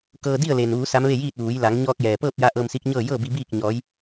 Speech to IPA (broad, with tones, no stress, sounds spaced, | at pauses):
k ɤː˧ d i˥˨ ə̯ l e˩ n ʋ uː˩˧ s a˧˥ m ʋ e˥˨ j iː˥˨ t̚ ʋ uː˩˧ j l a˩˧ ŋ ɲ ɔː˧ k̚ j ɛː˩ p ɤː˥˨ p̚ j a˧˥ ʔ ɤː˧ m s i˧˥ k̚ ɲ ɤː˥˨ j ɤː˥˨ b i˧ b iː˥˨ k̚ ɲ ɔː˧˥ j